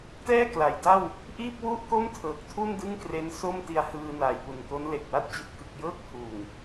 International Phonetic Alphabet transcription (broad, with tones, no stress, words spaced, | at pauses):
tɛː˥˩ kla˩˦jda˥˩w | ʔiː˥˩p̚wu˥˩ʔko˥˩m tʰɤː˨˩k̚ tʰu˥˩ndɯ˥˩ŋkre˦˥n so˥˩mti˧a̯ hɯː˧naː˨˩jpu˨˩nko˦˥n le˨˩k̚wa˦˥t̚ t͡ɕi˨˩t̚kɯ˨˩k̚jɤː˥˩k̚ huː˨˩ŋ